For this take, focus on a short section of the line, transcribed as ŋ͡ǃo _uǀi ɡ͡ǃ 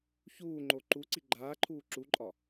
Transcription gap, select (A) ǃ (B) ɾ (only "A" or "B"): A